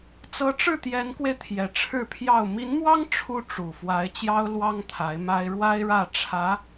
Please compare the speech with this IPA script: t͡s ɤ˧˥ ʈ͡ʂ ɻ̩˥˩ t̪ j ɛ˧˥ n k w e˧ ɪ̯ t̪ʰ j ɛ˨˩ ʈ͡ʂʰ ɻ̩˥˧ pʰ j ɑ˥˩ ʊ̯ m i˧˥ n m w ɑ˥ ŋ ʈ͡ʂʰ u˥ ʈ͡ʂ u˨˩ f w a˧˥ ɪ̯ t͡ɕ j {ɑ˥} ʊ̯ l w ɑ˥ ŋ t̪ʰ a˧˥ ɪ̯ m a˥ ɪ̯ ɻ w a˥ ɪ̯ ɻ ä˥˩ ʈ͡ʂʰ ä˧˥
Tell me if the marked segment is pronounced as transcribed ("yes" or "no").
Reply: yes